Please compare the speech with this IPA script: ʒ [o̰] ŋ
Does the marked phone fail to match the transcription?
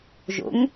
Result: no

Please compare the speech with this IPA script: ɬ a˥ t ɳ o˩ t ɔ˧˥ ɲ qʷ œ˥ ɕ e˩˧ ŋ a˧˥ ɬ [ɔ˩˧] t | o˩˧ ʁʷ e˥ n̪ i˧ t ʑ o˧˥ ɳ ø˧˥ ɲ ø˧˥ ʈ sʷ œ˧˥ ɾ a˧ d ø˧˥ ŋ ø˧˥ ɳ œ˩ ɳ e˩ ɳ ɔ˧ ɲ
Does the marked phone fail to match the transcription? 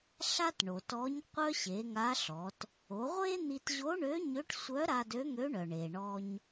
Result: no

